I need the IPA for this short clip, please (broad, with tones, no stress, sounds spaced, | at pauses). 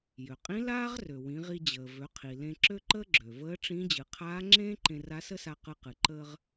j ø˩ qʼ ĩ˧˥ l aː˥ ʁ r ø˩ w ĩ˩˧ ʁ i˧ d͡ʑ əː˩ v ø˩˧ qʰ i˩ l ẽ˧ ǁ ø˥ ǃ əː˥ ɡ͡ǁ ø˩ v əː˧˥ ʈ͡ʂ ĩ˧˥ d͡ʑ ɨ˩˧ qʰ aː˧˥ ŋ͡ǁ ẽː˥ ǃ ẽ˧ r a˧˥ s ə˥ s a˧ q ɯ˧ q ɨ˩ ǃ əː˧ ʁ